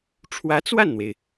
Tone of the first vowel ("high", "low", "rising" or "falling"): rising